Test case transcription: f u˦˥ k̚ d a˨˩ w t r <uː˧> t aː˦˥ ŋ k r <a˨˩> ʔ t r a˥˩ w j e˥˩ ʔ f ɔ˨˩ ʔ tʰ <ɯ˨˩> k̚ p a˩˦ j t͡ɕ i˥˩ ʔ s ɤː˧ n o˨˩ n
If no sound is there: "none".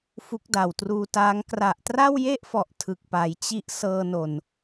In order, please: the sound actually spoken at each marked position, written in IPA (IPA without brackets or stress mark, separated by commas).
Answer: uː˧, a˨˩, ɯ˨˩